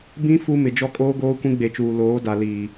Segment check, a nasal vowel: present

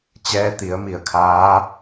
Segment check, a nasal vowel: absent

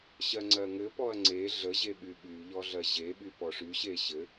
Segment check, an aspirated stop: absent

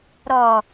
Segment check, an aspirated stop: absent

